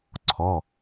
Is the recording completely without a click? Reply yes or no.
no